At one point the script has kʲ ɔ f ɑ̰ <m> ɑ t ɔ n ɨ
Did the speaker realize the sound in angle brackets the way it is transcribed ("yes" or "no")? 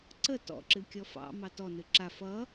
yes